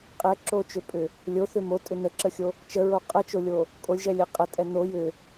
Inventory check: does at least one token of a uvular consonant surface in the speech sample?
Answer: yes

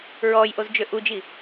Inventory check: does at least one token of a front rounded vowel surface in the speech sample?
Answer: yes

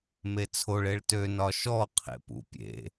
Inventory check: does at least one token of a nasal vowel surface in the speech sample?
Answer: no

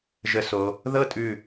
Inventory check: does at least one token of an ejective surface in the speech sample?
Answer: yes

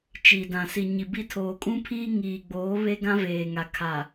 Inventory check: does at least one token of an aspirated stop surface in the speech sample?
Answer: yes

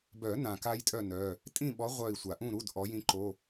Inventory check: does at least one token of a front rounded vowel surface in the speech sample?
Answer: yes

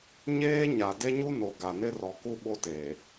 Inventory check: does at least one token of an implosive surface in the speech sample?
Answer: yes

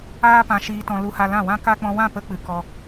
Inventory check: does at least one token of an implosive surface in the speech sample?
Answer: no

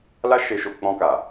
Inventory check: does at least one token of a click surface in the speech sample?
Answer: no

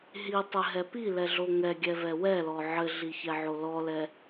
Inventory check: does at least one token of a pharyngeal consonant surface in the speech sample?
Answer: yes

